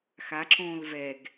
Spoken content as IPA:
x a ǁ õː l v ɛ ɡ

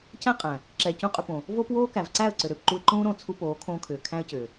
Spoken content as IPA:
c æ̃˦ qʼ æ̃˨ | ǁ ɛː˨ c ũ˦˨ qʼ ʏ˧ p õ˨ | v oː˦ p w oː˦ k æ˨ v ǀ æ˦˨ ə̯ ǀ ʏ˨ ɾ ʏː˨ p ǃ u˧ ɪ̯ ǃ ũː˦ ɾ õ˦˨ t͡sʰ u˧ p oː˨˦ kʰ õː˧ kʰ ʏː˨ kʰ æ̃˦ ə̯ c ʏː˨

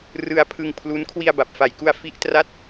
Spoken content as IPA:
r ɯ˧ a̯ pʰ ɯ˧ ŋ pʰ l u˦˥ n kʰ w i˧ a̯ b a˨˩ p̚ f a˨˩ j k u˧ a̯ f i˦˥ ʔ t r a˥˩ t̚

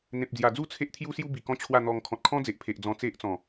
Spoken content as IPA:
n̪ ẽ˨ p̚ d͡z j a˨˩ d͡z u˥˧ t͡sʰ e˦ ʔ t̪ʰ j u˦ s j u˦ b i˨˩ k ɔ̃˦ t͡ɕʰ w a˥˧ n̪ ɔ˧ ŋ kʰ ɔ̃˨ t̚ kʰ ɔ̃˦ d͡z e˨ ʔ pʰ e˨ ʔ d͡z ɔ̃˧ t͡s e˦ ʔ t͡s ɔ̃˨˩

